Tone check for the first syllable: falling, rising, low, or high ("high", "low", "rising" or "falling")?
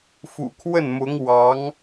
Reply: low